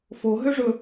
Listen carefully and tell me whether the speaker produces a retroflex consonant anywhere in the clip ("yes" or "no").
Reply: yes